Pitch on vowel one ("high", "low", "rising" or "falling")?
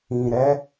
low